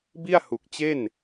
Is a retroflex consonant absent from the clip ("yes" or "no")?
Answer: yes